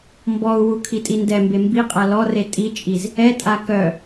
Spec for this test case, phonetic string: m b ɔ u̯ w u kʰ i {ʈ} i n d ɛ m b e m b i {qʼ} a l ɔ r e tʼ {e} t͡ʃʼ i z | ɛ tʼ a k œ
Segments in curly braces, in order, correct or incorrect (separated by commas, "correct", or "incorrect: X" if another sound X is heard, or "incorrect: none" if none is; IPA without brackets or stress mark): incorrect: tʼ, correct, incorrect: i